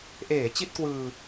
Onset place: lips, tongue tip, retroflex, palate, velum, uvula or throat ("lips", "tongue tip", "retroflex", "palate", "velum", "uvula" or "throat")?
throat